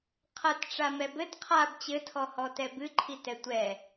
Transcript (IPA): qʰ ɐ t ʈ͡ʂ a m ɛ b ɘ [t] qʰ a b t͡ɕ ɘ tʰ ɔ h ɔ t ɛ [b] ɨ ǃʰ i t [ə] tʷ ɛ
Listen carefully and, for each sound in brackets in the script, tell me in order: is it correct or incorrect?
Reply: correct, correct, incorrect

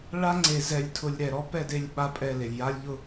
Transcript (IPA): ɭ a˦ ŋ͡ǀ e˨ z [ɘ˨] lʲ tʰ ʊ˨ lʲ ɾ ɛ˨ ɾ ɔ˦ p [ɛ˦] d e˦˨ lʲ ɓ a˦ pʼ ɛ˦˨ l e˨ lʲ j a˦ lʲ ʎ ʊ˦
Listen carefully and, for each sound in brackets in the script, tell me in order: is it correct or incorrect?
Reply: incorrect, incorrect

